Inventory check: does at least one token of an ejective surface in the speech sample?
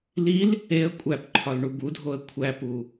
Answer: yes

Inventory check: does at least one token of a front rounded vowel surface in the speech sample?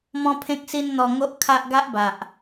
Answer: no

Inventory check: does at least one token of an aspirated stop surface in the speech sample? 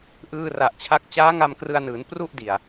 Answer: yes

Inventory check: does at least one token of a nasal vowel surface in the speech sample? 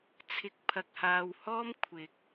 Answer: no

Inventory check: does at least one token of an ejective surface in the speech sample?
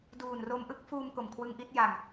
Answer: no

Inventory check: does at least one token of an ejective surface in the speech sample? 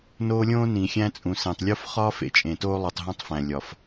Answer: yes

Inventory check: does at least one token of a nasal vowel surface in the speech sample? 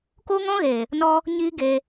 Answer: yes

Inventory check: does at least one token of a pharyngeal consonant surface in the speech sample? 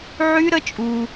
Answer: yes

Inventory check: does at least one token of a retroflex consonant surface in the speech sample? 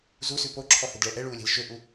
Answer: yes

